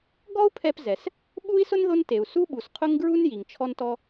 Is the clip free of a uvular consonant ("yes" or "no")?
no